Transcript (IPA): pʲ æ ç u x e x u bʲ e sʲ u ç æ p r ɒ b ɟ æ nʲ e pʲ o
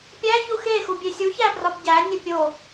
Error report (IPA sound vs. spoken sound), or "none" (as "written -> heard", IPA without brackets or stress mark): none